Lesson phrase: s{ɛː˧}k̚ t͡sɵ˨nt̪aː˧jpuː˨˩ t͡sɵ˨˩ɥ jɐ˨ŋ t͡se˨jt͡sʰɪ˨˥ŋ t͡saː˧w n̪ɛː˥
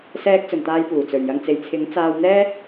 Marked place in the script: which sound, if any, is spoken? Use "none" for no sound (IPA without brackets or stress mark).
ɛː˧